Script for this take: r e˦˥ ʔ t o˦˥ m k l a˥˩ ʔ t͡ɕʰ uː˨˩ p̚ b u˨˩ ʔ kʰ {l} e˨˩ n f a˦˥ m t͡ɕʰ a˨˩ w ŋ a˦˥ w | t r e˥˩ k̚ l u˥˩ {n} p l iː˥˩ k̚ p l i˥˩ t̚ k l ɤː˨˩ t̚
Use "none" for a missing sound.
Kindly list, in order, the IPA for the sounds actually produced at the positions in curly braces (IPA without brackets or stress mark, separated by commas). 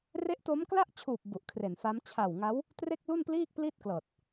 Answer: r, n